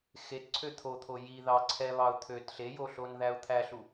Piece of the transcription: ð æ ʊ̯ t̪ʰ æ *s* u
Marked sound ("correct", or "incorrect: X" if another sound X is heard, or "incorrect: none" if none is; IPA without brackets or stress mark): incorrect: ɬ